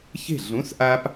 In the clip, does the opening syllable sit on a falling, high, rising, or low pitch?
falling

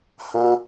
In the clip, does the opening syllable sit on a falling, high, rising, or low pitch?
high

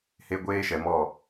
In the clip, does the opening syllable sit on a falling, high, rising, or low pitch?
high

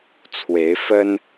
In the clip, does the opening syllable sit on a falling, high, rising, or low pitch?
rising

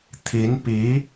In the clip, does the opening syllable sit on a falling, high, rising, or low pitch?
rising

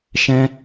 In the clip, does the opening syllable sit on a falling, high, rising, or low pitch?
high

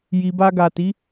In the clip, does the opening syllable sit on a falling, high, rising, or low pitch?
low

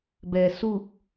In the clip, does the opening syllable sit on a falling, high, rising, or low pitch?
low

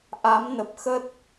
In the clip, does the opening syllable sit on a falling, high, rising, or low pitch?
rising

